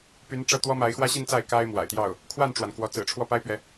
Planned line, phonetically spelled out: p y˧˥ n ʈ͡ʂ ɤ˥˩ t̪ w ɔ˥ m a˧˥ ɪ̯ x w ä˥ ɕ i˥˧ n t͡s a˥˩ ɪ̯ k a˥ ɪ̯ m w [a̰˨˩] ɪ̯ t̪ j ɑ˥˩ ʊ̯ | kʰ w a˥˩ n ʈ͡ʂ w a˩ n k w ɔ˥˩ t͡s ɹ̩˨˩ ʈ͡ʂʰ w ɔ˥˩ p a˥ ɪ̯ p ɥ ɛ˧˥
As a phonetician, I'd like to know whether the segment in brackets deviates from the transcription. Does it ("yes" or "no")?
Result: no